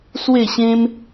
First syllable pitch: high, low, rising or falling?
falling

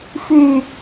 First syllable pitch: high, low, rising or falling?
low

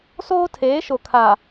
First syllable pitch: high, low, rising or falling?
high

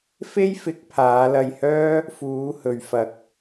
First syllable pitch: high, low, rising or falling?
high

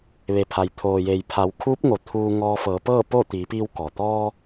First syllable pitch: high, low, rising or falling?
low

